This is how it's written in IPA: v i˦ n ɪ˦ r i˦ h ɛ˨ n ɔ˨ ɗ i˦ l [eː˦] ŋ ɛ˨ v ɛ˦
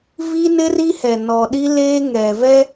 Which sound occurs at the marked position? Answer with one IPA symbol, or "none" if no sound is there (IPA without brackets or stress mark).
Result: eː˦